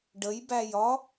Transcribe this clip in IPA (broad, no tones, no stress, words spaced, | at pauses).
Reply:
ɖəjbæj ɒ